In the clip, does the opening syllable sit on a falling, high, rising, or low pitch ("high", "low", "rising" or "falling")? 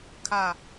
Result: falling